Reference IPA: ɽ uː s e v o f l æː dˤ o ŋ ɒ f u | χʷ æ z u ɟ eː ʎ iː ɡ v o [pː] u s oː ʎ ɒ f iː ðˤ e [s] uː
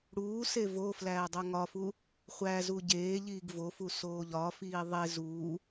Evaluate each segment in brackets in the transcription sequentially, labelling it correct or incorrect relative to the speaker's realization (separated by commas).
incorrect, incorrect